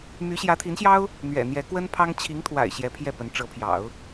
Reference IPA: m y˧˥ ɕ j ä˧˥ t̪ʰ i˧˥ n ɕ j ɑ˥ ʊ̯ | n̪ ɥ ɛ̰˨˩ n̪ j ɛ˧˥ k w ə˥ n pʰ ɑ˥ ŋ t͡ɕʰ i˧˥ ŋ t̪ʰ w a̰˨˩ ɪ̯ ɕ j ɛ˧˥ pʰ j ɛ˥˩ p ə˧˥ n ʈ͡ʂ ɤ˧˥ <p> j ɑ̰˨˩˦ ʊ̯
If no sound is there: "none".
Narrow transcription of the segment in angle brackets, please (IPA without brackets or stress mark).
pʰ